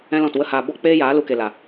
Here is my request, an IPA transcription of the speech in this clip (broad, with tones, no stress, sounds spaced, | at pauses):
ɛ̃˦ l ɔ̃˦˨ t w ə˦ h aː˧ b ɔ˦ k͡p eː˦ j aː˨˦ l u˧ k e˨ l a˨